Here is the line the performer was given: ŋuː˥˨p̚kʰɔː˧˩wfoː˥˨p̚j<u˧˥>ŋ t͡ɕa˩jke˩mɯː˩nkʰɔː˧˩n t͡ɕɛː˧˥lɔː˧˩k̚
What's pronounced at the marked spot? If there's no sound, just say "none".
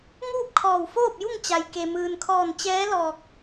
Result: u˥˨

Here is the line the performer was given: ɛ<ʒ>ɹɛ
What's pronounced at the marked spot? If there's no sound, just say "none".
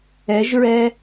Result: ʒ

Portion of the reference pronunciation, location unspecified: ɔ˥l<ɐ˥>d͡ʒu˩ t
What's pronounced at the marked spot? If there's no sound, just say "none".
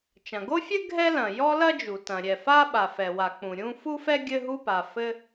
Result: ɐ˥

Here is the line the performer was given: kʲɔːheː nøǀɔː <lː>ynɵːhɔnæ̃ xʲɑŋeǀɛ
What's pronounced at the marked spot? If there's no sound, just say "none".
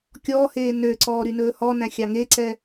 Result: ɾ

